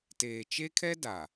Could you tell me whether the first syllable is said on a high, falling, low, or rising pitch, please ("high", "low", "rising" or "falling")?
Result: low